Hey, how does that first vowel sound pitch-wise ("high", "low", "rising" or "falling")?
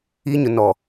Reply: high